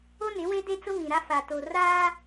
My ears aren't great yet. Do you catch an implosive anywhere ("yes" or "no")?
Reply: no